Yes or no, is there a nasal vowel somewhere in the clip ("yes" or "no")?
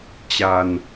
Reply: no